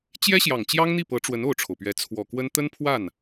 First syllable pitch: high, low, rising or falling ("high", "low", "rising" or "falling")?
high